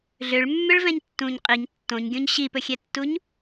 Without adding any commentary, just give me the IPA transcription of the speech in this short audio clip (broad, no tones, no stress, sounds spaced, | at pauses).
ɮ ø ɭ mː ø ɭ v ɛ̃ ɲ tː ũ ɲ qʼ i ɲ tː õ ɲ ɡʲ õ ɲ ɕ i p ɵ xʲ ɛ tː u ɲ